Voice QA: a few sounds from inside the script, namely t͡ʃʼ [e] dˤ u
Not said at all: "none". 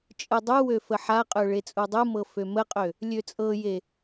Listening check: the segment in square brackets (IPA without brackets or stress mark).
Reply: ɨ